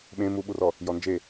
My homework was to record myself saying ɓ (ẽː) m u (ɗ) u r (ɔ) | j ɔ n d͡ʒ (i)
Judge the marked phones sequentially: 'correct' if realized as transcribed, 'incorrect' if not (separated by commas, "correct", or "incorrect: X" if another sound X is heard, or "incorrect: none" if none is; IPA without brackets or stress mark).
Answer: incorrect: ẽ, incorrect: ɓ, correct, incorrect: e